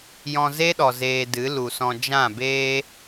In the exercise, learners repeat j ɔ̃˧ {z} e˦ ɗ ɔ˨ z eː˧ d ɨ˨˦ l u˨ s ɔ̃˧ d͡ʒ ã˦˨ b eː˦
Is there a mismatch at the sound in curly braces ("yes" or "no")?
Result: no